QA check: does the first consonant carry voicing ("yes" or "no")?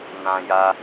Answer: yes